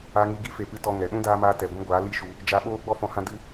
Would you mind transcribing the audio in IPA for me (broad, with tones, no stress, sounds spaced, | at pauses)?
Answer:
a˧ ŋ i˧ ɡ i˦ f e˨ p ɨ˧ t ɔ˧ ŋ ɛ˨ ɗ ũ˦ d aː˧ m aː˧ t ɛ˨ ɡʷ ĩ˦ ɡʷ aː˨˦ l i˦ ʃ u˧ | d͡ʒ a˧ ɓ oː˦ ɡ͡b ɔ˦ f ɔ̃˧ h ã˦ d ɨ˦